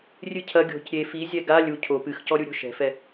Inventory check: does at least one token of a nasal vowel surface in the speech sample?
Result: no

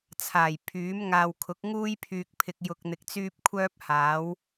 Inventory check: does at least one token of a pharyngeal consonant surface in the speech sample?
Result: no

